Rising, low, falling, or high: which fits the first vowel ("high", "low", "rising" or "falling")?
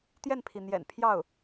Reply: falling